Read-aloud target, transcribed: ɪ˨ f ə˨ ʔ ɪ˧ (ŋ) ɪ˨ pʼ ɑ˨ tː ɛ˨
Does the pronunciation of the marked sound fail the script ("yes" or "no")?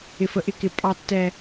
yes